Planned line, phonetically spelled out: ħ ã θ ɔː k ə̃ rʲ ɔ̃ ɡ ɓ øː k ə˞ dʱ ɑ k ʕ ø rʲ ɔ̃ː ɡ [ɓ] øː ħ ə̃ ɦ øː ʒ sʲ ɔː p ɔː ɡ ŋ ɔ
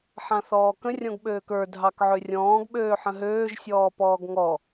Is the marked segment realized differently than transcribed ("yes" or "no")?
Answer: no